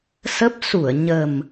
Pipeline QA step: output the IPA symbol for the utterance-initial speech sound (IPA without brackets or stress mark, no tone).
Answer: s